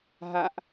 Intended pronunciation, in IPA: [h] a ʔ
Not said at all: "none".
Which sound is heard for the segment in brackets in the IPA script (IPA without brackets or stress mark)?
ɦ